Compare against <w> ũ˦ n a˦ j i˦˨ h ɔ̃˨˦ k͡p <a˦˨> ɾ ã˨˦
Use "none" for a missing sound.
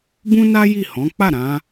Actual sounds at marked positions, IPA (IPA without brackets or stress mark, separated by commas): b, a˦˨